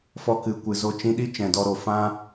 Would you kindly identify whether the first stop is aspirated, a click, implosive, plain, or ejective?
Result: plain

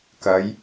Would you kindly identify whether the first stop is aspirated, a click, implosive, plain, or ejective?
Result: plain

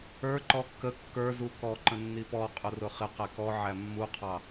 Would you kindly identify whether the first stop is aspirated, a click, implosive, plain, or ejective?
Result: click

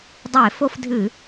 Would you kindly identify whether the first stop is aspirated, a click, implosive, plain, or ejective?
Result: plain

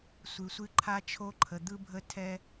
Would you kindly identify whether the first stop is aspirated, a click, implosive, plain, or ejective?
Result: click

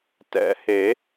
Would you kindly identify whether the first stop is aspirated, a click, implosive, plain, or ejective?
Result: plain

